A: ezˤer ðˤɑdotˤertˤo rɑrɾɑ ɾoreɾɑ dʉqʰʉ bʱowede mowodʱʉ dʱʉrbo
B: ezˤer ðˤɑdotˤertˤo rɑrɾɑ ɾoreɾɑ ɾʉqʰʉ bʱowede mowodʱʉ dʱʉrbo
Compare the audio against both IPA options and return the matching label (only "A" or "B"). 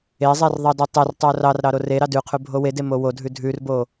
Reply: A